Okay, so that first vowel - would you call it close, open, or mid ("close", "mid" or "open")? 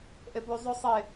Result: mid